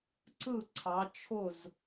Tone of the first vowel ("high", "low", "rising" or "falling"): falling